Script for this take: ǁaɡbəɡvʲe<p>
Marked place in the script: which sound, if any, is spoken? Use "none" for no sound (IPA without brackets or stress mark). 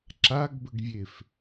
f